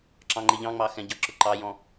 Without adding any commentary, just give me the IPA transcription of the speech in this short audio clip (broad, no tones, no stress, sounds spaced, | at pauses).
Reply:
ǁ ɑ̃ ŋ͡ǃ ɪ ʎ ɑ̃ ŋ͡m ɑ x ɛ̃ ɟ ʌ ǁ ʊ ǃ ɑ j ɔ̃